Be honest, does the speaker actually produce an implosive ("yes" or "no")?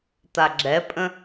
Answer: no